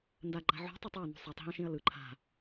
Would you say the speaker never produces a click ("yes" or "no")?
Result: no